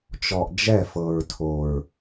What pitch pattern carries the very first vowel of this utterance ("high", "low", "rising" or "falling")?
low